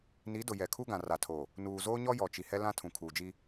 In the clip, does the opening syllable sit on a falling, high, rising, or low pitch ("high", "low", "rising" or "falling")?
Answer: rising